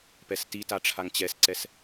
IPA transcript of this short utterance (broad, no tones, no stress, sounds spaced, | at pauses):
p ɛ s t i t a ʈ͡ʂʰ a ŋ t͡ɕ ɛ s ǀ ɛ s